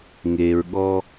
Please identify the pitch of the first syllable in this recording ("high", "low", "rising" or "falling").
low